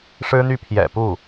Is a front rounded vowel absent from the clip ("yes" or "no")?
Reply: no